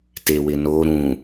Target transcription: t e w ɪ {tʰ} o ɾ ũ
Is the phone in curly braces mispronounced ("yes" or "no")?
yes